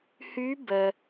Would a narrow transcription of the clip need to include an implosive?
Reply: no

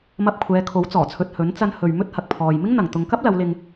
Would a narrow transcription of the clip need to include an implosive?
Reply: no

